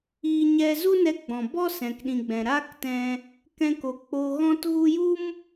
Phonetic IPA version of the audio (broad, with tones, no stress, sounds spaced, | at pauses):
iː˧ ɲ ɛ˧ z u˦ n ɛ˧ ɡ͡b ɔ̃˨ b ɔ˦ s ɛ̃˨ k ɗ ĩ˨ ɡ͡b ɛ̃˨ ɾ aː˦ k t ɛ̃˧ | k ɛ̃˧ k o˨ k͡p o˧ ɣ ɔ̃˦ t ɣ u˦ j u˦ m